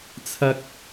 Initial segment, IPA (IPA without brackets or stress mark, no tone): t͡sʰ